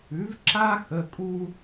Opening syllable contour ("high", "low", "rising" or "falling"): rising